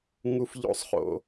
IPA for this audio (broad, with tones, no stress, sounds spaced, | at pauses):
ŋ u˦ f ʎ o̰˦ sˤ χ o̰˨